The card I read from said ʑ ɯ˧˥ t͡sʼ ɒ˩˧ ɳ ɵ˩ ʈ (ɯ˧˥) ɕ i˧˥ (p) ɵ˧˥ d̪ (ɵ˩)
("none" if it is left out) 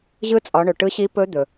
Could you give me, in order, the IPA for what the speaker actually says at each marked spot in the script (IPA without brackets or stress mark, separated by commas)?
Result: ɯ˧˥, p, ɵ˩